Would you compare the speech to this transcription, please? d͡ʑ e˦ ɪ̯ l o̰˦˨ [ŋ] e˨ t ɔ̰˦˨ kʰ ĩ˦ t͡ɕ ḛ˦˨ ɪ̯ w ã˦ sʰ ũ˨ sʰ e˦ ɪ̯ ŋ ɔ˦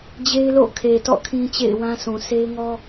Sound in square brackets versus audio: incorrect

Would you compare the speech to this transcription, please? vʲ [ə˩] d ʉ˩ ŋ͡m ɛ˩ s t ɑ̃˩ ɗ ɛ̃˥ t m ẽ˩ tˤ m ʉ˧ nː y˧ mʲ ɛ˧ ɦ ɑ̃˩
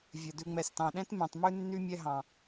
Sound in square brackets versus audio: correct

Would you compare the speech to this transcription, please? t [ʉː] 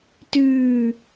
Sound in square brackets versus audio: correct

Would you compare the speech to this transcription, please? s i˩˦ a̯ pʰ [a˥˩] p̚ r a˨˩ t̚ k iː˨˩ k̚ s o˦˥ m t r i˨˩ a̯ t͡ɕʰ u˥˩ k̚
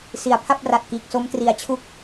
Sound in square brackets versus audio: correct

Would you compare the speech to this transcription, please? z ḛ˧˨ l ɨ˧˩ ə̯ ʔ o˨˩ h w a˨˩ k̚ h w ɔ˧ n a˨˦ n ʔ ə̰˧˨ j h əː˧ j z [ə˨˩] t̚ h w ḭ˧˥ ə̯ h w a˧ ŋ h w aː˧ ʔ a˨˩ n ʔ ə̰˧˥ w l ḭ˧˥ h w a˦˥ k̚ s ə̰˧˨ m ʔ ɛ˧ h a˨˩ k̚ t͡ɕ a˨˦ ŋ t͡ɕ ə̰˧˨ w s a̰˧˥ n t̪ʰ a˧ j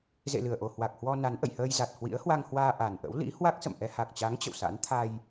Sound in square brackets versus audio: incorrect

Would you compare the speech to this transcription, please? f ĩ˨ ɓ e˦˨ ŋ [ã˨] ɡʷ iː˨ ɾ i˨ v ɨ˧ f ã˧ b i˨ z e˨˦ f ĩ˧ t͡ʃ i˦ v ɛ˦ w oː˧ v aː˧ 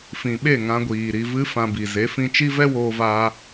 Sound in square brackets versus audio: incorrect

